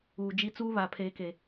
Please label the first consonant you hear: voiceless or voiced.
voiced